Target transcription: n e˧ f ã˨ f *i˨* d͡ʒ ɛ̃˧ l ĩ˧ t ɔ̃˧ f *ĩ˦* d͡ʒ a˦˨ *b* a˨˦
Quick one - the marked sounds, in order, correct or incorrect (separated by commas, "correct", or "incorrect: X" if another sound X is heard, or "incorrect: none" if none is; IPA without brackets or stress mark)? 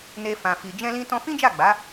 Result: correct, correct, incorrect: ɡ͡b